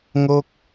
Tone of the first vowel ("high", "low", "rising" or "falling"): falling